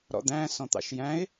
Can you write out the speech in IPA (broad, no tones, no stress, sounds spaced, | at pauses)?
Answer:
ɾ ɔ̰ d̪ æ̃ s ɔ̃ t̪ ɑ̰ ʃ j æ̃ ɪ̯